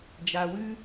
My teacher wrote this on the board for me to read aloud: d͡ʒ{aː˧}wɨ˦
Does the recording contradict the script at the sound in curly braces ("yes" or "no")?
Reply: yes